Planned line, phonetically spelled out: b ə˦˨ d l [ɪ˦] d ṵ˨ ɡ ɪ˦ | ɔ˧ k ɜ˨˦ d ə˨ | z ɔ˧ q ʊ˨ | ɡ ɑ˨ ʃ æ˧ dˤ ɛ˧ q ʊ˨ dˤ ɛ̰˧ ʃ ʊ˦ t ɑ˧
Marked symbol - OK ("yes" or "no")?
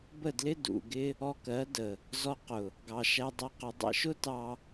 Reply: yes